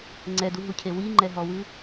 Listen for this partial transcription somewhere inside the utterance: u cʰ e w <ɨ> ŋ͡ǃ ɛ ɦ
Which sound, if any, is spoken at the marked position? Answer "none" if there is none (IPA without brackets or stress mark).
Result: i